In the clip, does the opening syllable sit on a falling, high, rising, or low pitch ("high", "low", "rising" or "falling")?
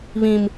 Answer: high